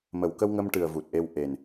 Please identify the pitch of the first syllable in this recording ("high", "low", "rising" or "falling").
low